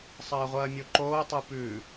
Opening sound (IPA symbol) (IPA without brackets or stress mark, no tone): sˤ